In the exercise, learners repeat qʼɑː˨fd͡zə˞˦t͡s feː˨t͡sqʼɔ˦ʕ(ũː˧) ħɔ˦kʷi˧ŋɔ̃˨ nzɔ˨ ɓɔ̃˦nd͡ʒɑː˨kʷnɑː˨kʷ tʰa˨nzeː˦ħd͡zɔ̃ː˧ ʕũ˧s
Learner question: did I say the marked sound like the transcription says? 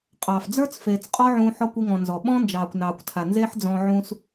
yes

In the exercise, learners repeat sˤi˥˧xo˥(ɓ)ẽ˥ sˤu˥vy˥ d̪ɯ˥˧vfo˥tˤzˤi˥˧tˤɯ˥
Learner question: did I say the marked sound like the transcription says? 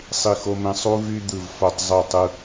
no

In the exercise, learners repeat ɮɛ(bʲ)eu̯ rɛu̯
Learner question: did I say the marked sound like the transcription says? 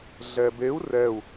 no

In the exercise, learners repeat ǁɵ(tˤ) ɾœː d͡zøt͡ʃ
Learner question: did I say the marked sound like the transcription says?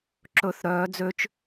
no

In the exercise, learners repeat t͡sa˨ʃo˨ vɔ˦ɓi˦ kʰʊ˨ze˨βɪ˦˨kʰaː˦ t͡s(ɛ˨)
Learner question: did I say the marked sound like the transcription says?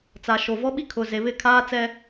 no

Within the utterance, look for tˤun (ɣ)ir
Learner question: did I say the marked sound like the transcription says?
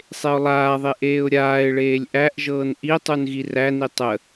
yes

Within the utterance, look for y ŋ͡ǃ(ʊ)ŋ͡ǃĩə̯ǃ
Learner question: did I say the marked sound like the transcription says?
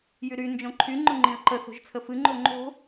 yes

